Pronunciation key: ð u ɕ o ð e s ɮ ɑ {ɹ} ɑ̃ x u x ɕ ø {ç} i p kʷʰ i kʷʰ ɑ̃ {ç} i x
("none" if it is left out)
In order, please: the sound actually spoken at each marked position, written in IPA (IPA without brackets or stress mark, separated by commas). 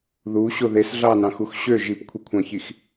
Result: n, ʒ, ç